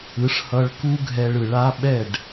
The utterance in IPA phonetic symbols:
ɯ˩˥ ʂ h ʌ˧ ɭ k u˥ ɡʱ ɛ˧ ɭ ɯ˩ ɭ a˥ ɓ ɛ˥˩ ɖ

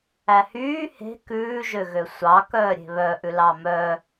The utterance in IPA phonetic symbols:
æ h yː h e̤ k ʉː ʒ ø ɣ ø sʷ ɑ k œː ɾʲ e̤ β œ ʔ ʉ l ɑ m œ

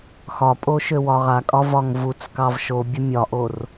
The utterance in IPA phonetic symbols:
x ɒ pʼ o ʃ ø w ɒ ʁ a kʼ ɒ v ɒ ŋ v u t͡s k ɑ v ʃ o bʲ ə mʲ ɒ ʔ o r

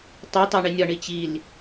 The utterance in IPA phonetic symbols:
tˤ u tˤ æ ɳ i nʲ ɒ ɳ i t͡ɕ i l

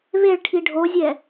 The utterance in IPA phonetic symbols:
β e ɭ ʈʰ i ɖʱ o zʲ ɛ

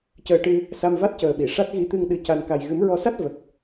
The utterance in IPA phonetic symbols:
c əː˧ ʈ ɨ˧ | s a˧ m v a˦˥ t̚ c əː˨˩ ɓ i˨˩˨ ʂ a˦˥ t̚ ɣ i˧ t̪ ɨ˧ ŋ ɗ ɨ˨˩ c a˨˩ n k a˨˩ j ɣ ɨ˨˩˦ m ɹ ɔ˧ s a˦˥ t̚ v ə˨˩ k̚

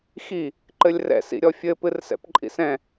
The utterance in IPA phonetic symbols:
x i | ǃ ɘ lʲ r ɛ̰ s ḭ ɾʲ ɔ fʲ ɘ p ɨ r s ɛ̰ p ǃʼ ḭ s ɛ̃

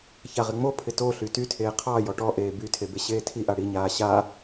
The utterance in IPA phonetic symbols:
ç a ʁ ɪ ŋ͡m o pʰ ɪ t o ɬ y t y tʰ eː qʰ ɑ j ɔ ʈ ɔ ʔ eː b y tʰ e b e ɕ eː tʰ i ʔ a ɽ i ɲ aː ɕ a

